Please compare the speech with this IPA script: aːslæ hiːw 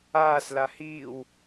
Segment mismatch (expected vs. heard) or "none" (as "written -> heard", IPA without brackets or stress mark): æ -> a